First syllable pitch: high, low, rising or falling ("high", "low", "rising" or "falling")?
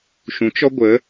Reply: rising